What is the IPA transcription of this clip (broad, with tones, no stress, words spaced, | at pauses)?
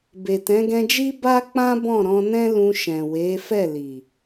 be˨tɛ̃˨˦ɡɛ̃˧d͡ʒi˦ ba˦k͡pã˦ bɔ̃˦˨ɾɔ̃˧nɛ̃˦ lũ˧ʃɛ̃˨we˨˦fɛ˦˨ li˨